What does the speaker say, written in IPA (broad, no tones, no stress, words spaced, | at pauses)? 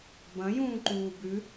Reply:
bɐ̃jũːǃuː bʉ